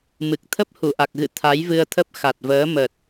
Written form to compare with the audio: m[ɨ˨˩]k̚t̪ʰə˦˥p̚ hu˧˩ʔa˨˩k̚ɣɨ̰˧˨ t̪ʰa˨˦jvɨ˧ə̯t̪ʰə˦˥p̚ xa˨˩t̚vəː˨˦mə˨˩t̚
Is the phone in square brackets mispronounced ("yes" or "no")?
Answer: no